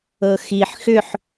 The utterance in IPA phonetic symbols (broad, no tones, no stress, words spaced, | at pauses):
ɤxiħ xʏħ